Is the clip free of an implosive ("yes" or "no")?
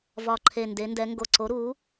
yes